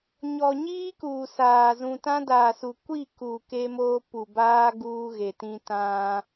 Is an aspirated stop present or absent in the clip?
absent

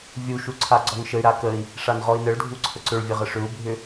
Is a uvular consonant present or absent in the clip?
present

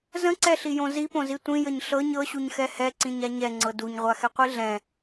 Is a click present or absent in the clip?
present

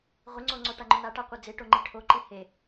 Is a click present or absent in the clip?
present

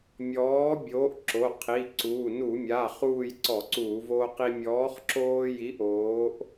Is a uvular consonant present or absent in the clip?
present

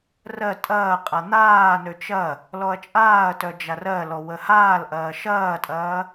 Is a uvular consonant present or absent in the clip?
present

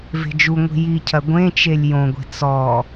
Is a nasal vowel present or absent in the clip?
present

